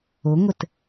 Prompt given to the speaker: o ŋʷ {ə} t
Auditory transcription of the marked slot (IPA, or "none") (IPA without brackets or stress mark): ə